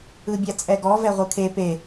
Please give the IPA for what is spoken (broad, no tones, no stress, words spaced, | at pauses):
ɯbʲat͡sʼɛɡɔ vɛʁʷɯkʰe pe